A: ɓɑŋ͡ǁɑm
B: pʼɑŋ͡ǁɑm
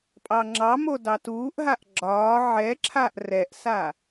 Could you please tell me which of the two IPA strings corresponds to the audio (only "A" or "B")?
B